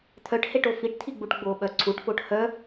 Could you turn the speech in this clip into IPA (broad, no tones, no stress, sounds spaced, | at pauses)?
t̪ʰ œ ʈ h e ʈ o f i ʈ t̪ʰ i ɡ͡b u ʈ ɡ͡b o ɓ œ ǀʰ u ʈ f o ʈ h œ